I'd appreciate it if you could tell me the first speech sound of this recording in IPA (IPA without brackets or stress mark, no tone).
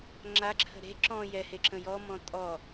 ŋ͡ǁ